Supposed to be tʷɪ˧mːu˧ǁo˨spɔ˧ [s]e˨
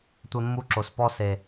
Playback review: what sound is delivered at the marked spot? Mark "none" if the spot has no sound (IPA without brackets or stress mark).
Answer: s